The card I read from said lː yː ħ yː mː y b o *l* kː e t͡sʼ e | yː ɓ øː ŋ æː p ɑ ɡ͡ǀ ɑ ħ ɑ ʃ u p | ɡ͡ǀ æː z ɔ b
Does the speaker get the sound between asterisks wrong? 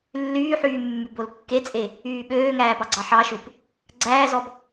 no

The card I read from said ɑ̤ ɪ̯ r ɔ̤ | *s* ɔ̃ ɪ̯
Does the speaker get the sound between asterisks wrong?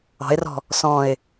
no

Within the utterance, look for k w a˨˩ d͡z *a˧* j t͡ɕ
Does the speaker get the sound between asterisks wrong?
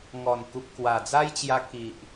yes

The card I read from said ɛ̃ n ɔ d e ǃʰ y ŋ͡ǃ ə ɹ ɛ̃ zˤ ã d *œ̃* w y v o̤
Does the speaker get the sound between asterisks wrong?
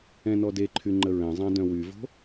no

